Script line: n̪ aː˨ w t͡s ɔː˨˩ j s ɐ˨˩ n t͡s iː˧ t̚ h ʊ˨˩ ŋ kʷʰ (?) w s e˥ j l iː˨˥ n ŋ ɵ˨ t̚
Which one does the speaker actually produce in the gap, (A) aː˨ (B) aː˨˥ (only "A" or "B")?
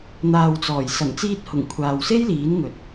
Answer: A